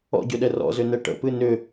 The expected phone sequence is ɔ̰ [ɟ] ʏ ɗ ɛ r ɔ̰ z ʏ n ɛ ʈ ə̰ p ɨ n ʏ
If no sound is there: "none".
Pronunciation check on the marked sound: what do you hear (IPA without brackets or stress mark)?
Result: ɟ